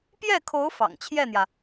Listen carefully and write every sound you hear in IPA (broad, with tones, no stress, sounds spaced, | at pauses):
p j ɛ˥˩ kʰ o˧˥ ʊ̯ f ɑ̰˨˩ ŋ t͡ɕʰ j ɛ˥˩ n̪ j ä˩